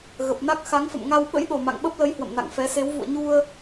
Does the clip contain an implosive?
yes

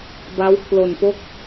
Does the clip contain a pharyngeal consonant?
no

